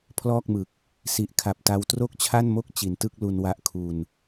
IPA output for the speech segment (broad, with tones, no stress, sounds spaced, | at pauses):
pʰ l ɔː˥˩ k̚ m ɯ˨˩ k̚ | s i˨˩ ʔ kʰ a˨˩ p̚ t a˧ w t r o˥˩ k̚ t͡ɕʰ a˥˩ n m o˥˩ k̚ t͡ɕ i˨˩ n t ɯ˥˩ k̚ l u˧ n w a˦˥ ʔ kʰ u˧ n